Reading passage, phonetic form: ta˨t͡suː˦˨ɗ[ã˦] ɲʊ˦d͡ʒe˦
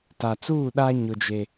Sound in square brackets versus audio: incorrect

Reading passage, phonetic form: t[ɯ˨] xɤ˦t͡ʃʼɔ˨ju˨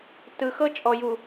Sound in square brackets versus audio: correct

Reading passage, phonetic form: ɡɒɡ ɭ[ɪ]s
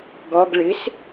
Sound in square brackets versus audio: correct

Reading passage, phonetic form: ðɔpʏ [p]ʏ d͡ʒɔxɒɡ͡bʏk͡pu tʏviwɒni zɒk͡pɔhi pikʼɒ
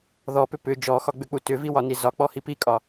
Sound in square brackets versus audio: correct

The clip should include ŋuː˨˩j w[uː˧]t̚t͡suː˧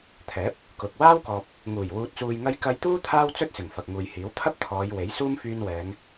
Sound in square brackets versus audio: correct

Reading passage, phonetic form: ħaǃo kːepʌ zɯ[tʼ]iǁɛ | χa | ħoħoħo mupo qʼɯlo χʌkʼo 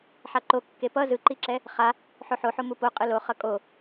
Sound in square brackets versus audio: incorrect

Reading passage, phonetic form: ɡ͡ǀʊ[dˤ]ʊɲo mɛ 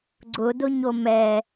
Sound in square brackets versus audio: incorrect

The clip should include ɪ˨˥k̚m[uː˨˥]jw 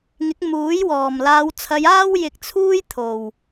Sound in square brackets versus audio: correct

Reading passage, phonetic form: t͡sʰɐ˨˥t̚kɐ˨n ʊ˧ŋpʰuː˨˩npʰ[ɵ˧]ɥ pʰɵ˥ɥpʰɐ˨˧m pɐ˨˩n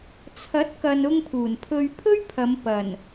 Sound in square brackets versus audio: correct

